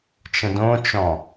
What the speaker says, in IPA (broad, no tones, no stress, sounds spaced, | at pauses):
t͡ʃ ə̃ d õ t͡ʃ ɔ̃